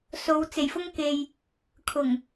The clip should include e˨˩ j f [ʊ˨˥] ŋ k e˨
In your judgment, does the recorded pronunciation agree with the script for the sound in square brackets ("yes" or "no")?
no